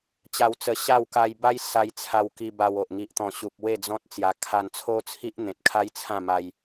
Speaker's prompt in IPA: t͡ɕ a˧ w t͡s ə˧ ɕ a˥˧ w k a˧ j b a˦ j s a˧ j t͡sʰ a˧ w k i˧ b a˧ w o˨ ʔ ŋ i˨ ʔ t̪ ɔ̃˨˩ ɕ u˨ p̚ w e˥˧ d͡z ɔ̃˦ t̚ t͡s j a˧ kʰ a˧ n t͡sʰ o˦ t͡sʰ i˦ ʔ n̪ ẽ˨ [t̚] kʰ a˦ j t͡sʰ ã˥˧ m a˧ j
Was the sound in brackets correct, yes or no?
yes